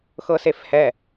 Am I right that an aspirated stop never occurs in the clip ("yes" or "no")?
yes